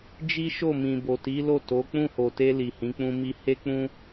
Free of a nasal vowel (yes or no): no